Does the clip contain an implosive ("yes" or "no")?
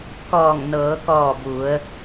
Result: no